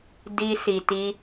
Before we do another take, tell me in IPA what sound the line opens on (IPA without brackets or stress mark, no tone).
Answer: d